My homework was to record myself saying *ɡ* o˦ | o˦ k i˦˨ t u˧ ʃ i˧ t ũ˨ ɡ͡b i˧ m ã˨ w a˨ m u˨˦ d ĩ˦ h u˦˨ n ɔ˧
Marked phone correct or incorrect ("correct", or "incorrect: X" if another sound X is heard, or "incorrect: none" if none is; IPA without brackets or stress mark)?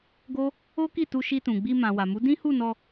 correct